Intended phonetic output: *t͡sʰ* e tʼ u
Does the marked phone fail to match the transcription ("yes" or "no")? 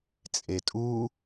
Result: yes